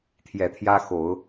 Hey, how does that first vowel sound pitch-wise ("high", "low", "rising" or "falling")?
low